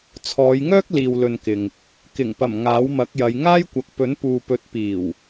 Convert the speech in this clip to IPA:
t͡sʰ ɔː˨˧ j ŋ œː˥ k̚ l iː˨ w l ɵ˨ n k ɪ˨ ŋ | k ɪ˨˩ ŋ p ɐ˨˩ m ŋ aː˨˥ w m ɐ˨˥ k̚ j ɐ˨˧ j ŋ aː˥ j kʷ ɐ˨ k̚ p ɵ˨˥ n p uː˨ p ɵ˨˥ t̚ p iː˨˩ w

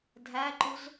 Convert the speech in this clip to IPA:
dʱ æ ǃ u z

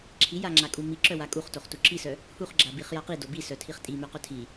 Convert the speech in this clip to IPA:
ǁʰ i j a ŋ͡ǁ a kʼ u m i ǁ œ w a kʼ u χ t o χ t u ǁ i s œ | h u χ ɡ͡ǁ a b i χ j a q i d o b i s œ tʰ i χ tʼ i m œ q œ tʰ i

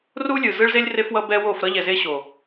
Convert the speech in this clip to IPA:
r u˦ lʲ ɯ˨ z ɯ˦ ɭ z e˦ lʲ r e˦ f w ʌ˦ b ɛ˦ w o˦˨ f ɾ ʌ˦ ʎ ɛ˨ z e˦ ɕ o˨

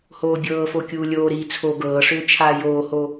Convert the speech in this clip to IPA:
h oː bʲ ɤː f o kʲ uː lʲ oː ɾ iː t͡sʰ o ɡ ɤː ʂ ʏː t͡ʃʰ aː j oː h o

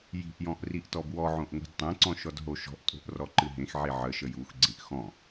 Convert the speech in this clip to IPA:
j i̤ ʔ j ɔ̃ ʔ r i ʔ t ɔ b w ɔ ʕ õ ʔ ŋʷ i̤ d tˤ ẽ ǀ ɔ̃ ʃ ɔ d ɦ o ʃ ɔ̤ ʔ tʼ o̤ ʔ r ɔ ǃ ɨ ɦ ẽ x ʕ i ʕ ə ʃ ə j u x ɡ͡ǀ ĩ ʔ x ɔ̃

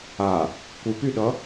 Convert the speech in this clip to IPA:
a | kʷ ɨ p y ɗ ʌ

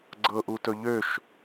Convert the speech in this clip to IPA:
ɡ͡ǀ ɤ ʔ u t ɵ ʎ ø ʃ

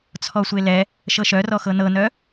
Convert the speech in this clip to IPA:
t͡sʰ ɔ sʷ e l ɛ | ʃ ɤ ʃ œ r ɔ x ɤ n ɤ n œ

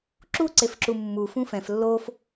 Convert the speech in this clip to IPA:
ǁ u ǀ e f ǁ u mː u f ũ f ɛ̃ f lː o f

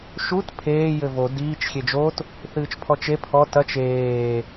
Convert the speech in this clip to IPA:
ʃ u t pʰ eː j ɘ v o d iː t͡ʃ xʲ e d͡ʒ o t | θ ɨː t͡ʃ pʰ ɔ t͡ʃ e pʰ ɔ t ɐ t͡ʃ eː

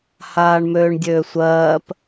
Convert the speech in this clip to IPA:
h aː ɳ m øː ɳ dʲ øː sʷ ɜː p

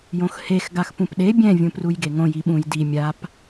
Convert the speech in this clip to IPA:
j õ x h e x ɡ a x p ũ p ɗ e bʲ ɛ̃ vʲ ũ p r u j ɡ e ŋ õ j i ɓ ũ j d i mʲ a p

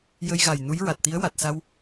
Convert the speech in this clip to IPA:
j ə˧ j ɣ a˨˩ j n u˧˥ j ɹ a˨˩ t̚ t̪ i˧˥ ə̯ w a˨˩ t̚ s a˧ w

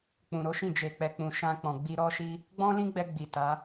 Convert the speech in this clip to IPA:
k͡p ũ˨ ɾ o˨˦ ʃ ĩ˦˨ d͡ʒ e˨ k͡p ɛ˨ k͡p ũ˨ ʃ ã˧ k͡p ɔ̃˨ ɡ͡b i˧ ɾ ɔ˦ ʃ i˦ | ɡ͡b ɔ̃˦ l ĩ˦ ɡ͡b ɛ˧ ɡ͡b i˨ t a˨˦

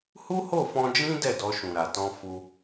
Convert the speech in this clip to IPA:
h u˦ h o˦˨ f ɔ̃˧ d͡ʒ ĩ˦ d ɛ˦˨ d ɔ˧ ʃ ũ˨ ɾ a˨ t ɔ̃˧ f u˧

